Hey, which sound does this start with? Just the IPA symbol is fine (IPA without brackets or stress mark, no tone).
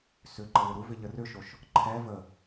s